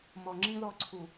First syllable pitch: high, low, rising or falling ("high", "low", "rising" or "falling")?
low